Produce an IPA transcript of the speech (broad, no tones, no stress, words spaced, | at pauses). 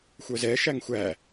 xʷœzɛ ʃæŋxʷæ